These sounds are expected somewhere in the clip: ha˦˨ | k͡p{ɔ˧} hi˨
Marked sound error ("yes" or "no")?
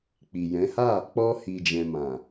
no